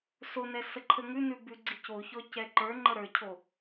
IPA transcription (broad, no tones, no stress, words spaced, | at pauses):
sonɛ səǃʰəŋʉnʉ bʉɡ͡ǀicoçɔ cɛǃə˞ŋ͡ǃə ɾə˞cʰo